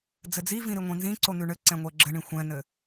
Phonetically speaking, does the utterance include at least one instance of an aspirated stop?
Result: no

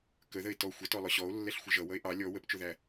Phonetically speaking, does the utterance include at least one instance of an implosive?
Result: no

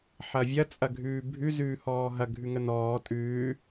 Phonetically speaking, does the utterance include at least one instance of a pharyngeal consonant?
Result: yes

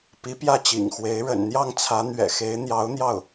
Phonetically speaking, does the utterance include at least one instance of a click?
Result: no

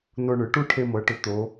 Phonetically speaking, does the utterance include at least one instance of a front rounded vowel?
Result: yes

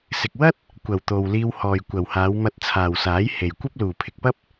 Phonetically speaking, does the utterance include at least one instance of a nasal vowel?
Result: no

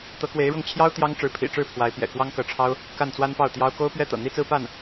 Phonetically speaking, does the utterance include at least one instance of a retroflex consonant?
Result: yes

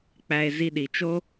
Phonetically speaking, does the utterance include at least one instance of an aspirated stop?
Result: no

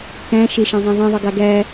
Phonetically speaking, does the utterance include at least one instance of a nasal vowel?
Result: yes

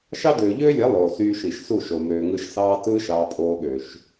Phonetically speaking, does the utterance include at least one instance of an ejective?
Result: yes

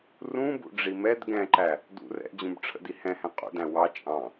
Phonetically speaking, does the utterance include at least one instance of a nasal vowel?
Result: yes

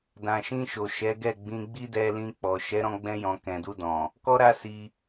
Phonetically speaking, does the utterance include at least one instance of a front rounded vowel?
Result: no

